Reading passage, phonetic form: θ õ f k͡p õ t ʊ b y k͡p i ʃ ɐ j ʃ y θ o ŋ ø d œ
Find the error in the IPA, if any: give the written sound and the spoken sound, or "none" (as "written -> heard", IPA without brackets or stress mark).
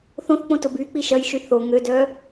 f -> θ